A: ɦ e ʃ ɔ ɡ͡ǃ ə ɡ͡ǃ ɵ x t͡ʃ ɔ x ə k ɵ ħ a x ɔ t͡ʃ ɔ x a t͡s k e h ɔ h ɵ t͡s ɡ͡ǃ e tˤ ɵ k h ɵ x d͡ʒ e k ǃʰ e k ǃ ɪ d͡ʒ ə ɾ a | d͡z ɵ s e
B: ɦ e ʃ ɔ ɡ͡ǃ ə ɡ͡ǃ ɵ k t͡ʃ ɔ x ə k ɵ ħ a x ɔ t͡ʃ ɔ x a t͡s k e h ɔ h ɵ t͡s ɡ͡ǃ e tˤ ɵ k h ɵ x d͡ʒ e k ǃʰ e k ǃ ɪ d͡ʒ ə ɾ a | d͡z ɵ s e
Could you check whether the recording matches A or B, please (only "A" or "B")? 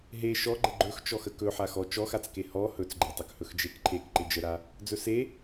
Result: A